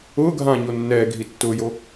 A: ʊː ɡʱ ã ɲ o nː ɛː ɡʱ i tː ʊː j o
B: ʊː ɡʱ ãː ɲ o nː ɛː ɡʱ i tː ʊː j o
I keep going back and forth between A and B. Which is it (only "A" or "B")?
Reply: B